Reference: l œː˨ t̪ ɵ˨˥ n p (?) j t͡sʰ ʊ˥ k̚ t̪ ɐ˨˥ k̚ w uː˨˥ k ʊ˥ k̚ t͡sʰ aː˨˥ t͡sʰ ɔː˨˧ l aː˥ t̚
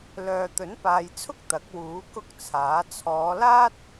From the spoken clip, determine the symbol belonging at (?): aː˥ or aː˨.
aː˨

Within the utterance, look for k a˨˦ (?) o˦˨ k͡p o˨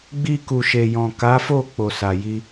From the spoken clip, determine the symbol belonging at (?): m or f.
f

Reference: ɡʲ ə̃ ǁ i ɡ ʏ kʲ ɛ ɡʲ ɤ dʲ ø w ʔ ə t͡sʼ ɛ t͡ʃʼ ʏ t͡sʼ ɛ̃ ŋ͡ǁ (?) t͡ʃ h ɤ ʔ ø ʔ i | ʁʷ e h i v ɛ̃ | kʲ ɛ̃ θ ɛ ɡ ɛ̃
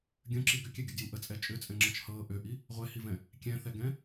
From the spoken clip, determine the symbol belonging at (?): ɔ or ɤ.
ɤ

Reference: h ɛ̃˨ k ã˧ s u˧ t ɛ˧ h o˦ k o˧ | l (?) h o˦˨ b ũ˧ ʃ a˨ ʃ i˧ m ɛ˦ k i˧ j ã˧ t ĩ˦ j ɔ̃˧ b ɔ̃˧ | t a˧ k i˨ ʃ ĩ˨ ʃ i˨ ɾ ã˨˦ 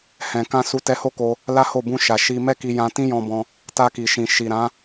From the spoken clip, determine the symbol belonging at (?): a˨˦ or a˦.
a˦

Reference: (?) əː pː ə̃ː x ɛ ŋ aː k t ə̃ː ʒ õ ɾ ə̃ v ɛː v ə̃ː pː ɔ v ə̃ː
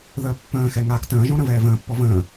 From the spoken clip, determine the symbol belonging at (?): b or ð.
ð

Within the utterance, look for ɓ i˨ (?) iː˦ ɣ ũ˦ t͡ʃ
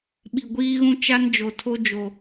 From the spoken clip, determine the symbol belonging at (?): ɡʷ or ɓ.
ɡʷ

